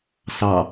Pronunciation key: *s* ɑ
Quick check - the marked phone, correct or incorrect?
correct